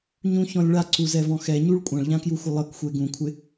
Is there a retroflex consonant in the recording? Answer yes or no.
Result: yes